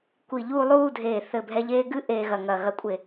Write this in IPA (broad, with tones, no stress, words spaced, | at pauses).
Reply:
kʷi˧˩ʎuː˥˧lˠuː˥˧dʱeː˧˩ θɘ˧˩bʱɛ˧ʎeː˥˧ ɡɨ˥ʔeː˧ɣɐ˧˩ ŋɐ˧˩ɣɐ˧kʷʼe˧˩